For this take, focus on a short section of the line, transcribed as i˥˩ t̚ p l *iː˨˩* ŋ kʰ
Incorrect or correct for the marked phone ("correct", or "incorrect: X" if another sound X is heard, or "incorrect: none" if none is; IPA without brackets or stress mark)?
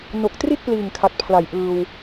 correct